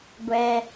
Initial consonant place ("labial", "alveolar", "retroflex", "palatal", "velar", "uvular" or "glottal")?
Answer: velar